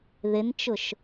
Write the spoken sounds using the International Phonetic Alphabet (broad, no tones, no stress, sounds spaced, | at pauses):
ð ɪ n t͡ʃ ʊ ʃ